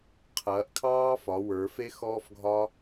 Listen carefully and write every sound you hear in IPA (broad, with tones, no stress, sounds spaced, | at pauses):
qʰ ɐː˩˧ ʔ kʰ ɑː˥ f ɒ˩˧ w ə˞˩˧ f e˥ x ɔː˥ f ɡʱ ɒ˥